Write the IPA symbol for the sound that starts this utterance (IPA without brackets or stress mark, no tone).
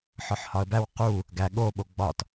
ħ